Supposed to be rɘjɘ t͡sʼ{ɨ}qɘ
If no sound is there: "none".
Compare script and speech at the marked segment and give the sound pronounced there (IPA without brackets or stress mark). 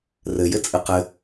ɨ